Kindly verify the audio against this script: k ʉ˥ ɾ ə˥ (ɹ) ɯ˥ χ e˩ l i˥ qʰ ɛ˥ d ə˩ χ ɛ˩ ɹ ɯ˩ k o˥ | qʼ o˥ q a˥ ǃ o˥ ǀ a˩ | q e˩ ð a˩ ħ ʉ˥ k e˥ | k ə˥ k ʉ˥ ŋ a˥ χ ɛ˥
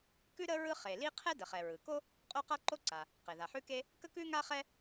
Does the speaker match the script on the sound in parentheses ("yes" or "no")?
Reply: yes